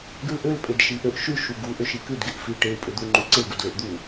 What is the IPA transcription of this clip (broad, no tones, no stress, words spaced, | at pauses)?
ɡʉlʔøl pʼedʃiʔøʔ ʃʉ ʃuɡu ʔøʃikʉd ɡeʔfi ʈew pʼed̪uŋ͡ǃʉǀe ɡudleʔd̪u